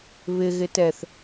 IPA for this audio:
β ɪ ɣ ɪ t ɛ θ

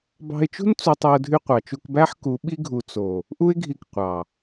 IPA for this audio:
b ɑ̤˧ ɪ̯ t͡ʃ ṳ˦ n t͡s u˧ tˤ e˧ ʊ̯ dʱ y˧ qʷ ɑ˨ t͡ʃ u˧ k b æ˦ ħ k u˨˦ ɓ i˦ ɡʱ u˨ t͡s o˨ | ʔ u˦ ɪ̯ ɡʱ i˧ k qʷ ɑ˨

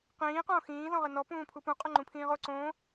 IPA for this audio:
q ĩː q õː x ĩː z ɔ̃ ʁ ɘ n ɔ p ũː pʰ u p ũ qʼ o ŋ͡ǃ ũ pʰ ĩː ʁ o ǀ õː

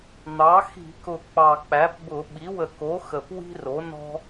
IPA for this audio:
n̪ ɑ˩˥ x i̤˧˩˧ k ʊ˨˩ k͡p ɑ˨˩ k͡p æ˩˥ p b ʊ˧˩˧ ɓ i˩˥ w ə˨˩ k o˩˥ x ə˨˩ p w i̤˦ r o˩˥ n ɔ̤˦

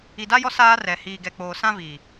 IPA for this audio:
i˨ d a˦ j ɔ˦ s aː˦ r ɛ˨ h iː˨ ɡ ɛ˨ k͡p oː˨ s ã˦ v iː˨

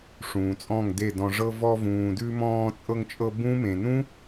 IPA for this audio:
ʂ ũː˨ t͡sʼ ɔ̃˦˨ ŋ d e˦˨ d ɔ̃˧ ʐ ɤ˧ v ɔ˧ v ũː˨ d ʉ˧ m ɔ̃ː˧ t͡sʼ ɤ˧ ŋ t͡ʃʼ ɤ˧ b ũ˦ m ẽ˨ n ũ˦

